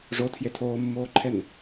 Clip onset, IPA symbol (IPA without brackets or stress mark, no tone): ʐ